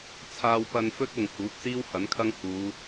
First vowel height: low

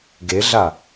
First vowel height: mid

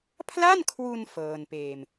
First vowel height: low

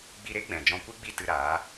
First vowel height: high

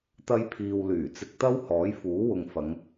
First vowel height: low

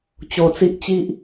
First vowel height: mid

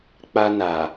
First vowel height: low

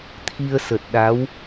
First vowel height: high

